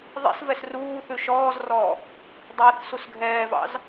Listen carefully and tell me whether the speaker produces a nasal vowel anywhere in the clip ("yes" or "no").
no